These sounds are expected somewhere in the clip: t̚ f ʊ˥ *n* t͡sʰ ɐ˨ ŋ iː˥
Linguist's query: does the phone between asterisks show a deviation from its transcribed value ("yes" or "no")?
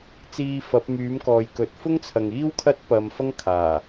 yes